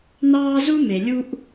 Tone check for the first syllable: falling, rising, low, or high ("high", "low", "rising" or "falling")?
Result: high